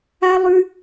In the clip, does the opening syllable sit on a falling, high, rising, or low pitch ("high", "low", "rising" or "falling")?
high